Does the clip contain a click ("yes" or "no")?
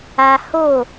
no